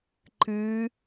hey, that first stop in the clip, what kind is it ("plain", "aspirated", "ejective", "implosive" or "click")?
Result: click